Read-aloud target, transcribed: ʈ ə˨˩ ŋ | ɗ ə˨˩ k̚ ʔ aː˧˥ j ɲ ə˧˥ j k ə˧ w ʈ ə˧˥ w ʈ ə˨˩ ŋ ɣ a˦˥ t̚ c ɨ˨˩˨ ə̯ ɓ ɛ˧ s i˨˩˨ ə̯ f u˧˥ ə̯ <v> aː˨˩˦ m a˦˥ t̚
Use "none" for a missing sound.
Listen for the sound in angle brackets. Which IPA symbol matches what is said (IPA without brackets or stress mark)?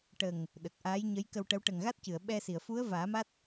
v